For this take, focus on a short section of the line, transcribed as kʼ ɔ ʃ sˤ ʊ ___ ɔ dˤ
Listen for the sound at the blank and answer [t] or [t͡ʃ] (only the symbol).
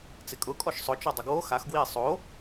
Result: t͡ʃ